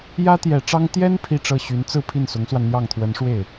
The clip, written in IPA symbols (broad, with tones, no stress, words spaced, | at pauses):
jä˥t̪jɛ˨˩ ʈ͡ʂɑ˥ŋ t̪jɛ˥n pʰi˥˧ʈ͡ʂɤ˥˩ ɕy˧˥nt͡sɹ̩˥˧ pʰi˥˩nsʊ˧˥ŋswa˧nn̪jɑ˥˩ŋ t̪ʰwə˧˥nʂwe˥˩ɪ̯